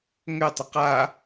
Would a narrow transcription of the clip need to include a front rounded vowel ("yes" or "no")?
yes